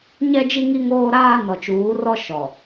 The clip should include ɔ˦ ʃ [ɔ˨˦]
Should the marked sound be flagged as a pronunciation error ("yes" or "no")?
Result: yes